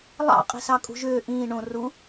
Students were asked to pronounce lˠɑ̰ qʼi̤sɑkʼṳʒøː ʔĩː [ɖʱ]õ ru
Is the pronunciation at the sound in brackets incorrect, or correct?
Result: incorrect